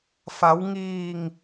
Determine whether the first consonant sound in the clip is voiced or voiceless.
voiceless